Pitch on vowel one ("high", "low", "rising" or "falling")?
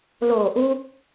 low